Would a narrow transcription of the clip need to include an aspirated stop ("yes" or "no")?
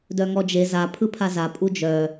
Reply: yes